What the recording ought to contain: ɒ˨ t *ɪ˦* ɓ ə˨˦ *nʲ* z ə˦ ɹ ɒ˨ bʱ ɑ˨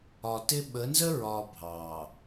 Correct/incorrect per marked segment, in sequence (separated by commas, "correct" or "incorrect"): correct, incorrect